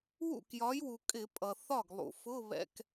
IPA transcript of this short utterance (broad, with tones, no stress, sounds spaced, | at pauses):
w ṵ˥˩ k j ɒ˨˥ j w u˩ kʼ ɪ˧˩˧ pʼ ʌ˩ θ ɒ˥˩ ɡ lˠ ṵ˩ f ʊ˧˥˧ β ɛ̰˧ k